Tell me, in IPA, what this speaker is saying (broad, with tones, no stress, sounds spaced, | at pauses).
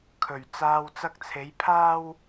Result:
kʰ ɵ˨˩ ɥ t͡s aː˨ w t͡s ɐ˧ k̚ t͡sʰ e˨˧ j pʰ aː˥ w